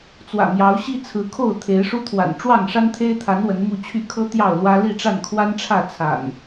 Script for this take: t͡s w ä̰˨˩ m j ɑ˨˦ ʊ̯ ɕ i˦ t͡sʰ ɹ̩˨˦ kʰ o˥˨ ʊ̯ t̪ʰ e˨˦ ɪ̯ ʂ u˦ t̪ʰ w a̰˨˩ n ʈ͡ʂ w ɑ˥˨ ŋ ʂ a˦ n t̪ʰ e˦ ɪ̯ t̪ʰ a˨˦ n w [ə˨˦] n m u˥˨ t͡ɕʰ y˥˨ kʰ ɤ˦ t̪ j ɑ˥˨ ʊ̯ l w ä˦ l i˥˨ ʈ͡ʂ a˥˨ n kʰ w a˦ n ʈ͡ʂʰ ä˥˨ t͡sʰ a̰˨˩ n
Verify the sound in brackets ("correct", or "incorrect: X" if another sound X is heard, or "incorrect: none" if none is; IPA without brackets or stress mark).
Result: correct